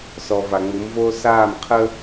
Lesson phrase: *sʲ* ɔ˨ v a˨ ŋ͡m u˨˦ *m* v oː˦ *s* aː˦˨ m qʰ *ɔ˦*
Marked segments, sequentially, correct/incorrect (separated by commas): incorrect, correct, correct, incorrect